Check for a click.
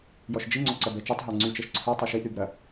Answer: present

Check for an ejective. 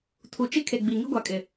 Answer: present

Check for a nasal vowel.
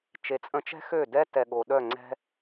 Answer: present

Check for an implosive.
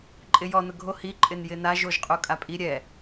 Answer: absent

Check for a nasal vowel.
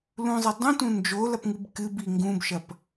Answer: present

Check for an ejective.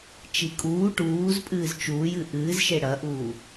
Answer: present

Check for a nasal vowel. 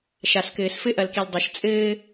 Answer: absent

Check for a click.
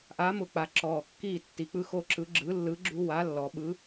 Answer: present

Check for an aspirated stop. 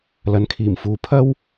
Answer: present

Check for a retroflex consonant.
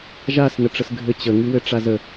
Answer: present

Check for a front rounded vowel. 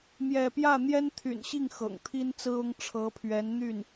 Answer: present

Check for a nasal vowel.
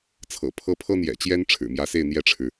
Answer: absent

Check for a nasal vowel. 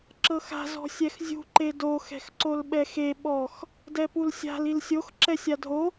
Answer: absent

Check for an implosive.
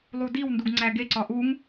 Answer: absent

